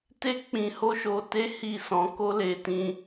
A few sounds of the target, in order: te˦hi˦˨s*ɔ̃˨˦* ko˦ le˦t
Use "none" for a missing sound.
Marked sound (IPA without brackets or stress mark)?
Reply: ɔ̃˨˦